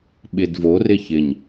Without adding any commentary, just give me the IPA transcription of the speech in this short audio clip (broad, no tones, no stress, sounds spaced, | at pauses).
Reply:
ɓ ɪ d v o r ɪ ç ɪ ɲ